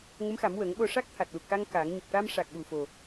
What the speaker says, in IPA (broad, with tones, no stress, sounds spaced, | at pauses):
ŋ ə˧˥ m x a˨˩˦ m w ə˨˩˦ ŋ ɓ o˧ ʂ a˦˥ k̚ t̪ʰ a˨˩ t̚ l u˨˩ k̚ x a˧ ŋ k a˨˩˦ ŋ ɲ ə˨˩ k̚ ʈ a˧ m ʂ a˨˩ k̚ ɓ u˨˩ f o˨˩